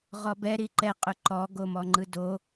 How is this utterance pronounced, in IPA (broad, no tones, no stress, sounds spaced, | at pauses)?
ʁ ɔ b ɛ ɾ i ǃ ɛ qʼ ʊ ǃ ɔ ɡ o m ɔ ŋ͡ǃ ɯ d o